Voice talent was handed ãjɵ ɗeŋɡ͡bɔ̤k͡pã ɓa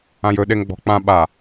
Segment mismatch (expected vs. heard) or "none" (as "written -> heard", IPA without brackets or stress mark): none